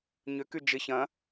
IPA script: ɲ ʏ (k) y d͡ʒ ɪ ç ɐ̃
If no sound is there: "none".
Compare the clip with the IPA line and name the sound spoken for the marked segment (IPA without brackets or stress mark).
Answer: k